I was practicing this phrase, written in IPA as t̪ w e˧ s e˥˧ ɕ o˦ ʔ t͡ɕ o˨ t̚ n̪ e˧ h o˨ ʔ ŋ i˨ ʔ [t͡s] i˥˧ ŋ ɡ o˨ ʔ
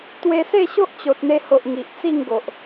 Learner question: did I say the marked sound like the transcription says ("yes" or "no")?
yes